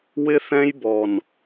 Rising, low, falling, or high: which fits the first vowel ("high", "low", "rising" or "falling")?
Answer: high